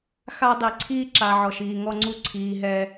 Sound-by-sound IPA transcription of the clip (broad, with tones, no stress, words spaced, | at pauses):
xa˦dˤi˨ ǀʰiː˦ǁa˨ ʕɔ˨ʃiː˨ŋɔ˦ŋ͡ǀu˦ ǀʰiː˨ɦɛ˦